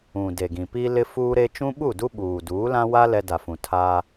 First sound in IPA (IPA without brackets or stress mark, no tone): ũ